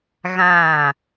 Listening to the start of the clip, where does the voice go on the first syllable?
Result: falling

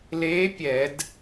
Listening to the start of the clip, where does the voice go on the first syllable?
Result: rising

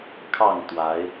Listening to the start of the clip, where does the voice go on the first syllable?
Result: falling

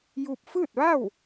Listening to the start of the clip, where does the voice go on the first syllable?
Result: falling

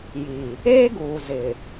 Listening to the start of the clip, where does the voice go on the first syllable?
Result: low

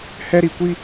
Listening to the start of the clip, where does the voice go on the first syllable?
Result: high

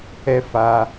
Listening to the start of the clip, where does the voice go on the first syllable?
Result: high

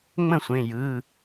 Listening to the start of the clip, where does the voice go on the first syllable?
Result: falling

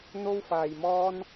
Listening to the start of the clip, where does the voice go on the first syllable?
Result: high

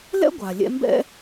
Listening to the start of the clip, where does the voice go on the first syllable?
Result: high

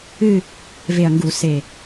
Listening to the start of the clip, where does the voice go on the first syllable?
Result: falling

